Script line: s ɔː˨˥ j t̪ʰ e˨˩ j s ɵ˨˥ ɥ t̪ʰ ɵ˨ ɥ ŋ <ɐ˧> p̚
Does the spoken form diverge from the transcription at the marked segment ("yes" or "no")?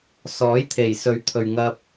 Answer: no